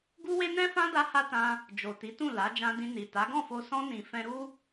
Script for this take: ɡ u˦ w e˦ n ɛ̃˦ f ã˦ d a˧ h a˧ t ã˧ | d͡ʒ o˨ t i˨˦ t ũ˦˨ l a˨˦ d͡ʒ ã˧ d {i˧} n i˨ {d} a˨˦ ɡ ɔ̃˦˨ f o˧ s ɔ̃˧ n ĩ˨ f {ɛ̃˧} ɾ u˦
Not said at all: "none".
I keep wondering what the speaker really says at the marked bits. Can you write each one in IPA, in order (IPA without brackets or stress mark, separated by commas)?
ĩ˧, t, ɛ̃˧